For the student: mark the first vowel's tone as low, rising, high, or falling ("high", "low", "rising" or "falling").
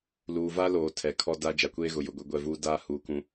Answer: low